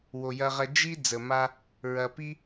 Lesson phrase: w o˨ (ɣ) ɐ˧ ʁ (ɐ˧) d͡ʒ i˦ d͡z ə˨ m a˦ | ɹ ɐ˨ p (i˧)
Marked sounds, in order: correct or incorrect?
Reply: incorrect: j, correct, incorrect: i˦

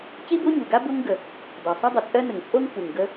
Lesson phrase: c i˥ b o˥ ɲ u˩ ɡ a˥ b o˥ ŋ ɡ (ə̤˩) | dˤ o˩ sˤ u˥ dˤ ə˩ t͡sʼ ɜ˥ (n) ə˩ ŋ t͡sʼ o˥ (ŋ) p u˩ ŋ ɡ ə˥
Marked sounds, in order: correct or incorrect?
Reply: incorrect: ə˩, correct, correct

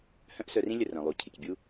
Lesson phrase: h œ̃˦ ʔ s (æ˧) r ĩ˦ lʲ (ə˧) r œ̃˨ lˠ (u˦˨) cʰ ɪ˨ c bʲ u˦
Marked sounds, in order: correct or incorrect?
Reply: incorrect: œ˧, correct, incorrect: u˨

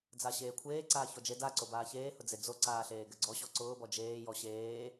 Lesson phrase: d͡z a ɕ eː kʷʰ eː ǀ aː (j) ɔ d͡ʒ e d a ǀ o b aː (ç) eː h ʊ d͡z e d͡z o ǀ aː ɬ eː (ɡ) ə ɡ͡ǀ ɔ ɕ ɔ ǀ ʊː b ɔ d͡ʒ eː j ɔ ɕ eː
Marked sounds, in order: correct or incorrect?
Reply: incorrect: ç, correct, correct

